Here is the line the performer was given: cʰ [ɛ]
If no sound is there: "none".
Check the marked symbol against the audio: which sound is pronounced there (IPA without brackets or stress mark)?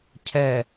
ɛ